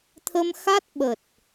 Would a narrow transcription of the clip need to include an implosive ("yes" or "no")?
yes